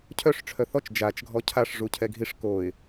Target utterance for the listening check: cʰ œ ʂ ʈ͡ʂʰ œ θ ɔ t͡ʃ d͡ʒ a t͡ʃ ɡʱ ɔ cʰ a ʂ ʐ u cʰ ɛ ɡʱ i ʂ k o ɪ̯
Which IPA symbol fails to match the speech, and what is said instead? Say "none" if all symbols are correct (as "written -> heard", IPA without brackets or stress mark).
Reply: none